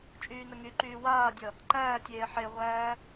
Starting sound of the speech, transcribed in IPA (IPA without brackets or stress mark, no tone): t͡ʃʼ